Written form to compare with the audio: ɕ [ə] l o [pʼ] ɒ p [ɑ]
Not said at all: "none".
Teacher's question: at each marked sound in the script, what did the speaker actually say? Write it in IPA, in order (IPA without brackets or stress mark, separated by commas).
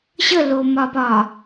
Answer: ə, m, ɒ